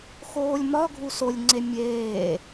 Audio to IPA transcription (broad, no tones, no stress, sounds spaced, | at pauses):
x oː lʲ m ɒ ɡʱ u s o lʲ ŋ͡ǀ e mʲ eː